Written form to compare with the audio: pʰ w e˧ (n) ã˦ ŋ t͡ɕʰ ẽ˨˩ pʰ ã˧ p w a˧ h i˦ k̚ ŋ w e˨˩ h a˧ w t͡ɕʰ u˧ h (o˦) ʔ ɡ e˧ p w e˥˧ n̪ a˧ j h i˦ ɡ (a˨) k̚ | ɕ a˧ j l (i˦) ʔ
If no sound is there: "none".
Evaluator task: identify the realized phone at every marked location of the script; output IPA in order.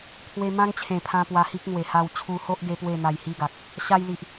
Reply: m, o˦, a˨, i˨

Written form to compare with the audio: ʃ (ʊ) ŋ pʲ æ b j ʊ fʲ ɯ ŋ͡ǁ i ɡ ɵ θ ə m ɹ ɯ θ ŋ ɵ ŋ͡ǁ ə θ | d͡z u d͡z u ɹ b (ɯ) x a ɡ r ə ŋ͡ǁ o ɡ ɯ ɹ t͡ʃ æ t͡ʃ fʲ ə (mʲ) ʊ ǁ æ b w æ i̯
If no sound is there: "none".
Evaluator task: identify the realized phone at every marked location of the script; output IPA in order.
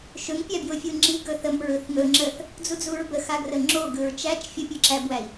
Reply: ɵ, ə, pʲ

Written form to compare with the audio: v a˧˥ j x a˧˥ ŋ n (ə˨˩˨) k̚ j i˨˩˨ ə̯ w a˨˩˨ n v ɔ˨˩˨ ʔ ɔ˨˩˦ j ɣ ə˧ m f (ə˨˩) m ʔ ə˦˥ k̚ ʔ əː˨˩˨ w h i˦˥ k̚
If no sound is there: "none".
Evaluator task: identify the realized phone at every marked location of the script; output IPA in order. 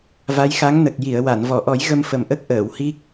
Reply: ə˨˩, ə˨˩

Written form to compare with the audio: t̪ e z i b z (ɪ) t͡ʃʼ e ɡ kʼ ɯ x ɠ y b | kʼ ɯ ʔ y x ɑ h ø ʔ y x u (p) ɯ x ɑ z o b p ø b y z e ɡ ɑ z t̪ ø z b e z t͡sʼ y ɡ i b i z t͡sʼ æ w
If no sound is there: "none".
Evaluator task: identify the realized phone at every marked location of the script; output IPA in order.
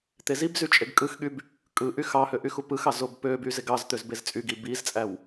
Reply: y, p

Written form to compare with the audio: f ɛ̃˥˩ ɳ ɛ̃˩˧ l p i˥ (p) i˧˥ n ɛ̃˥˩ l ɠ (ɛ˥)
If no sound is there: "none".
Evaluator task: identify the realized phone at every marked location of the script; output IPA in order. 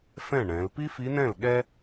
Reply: f, ɛ˥

